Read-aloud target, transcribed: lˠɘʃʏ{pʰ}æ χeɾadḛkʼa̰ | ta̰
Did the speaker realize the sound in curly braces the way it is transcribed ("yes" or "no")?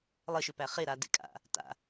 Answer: no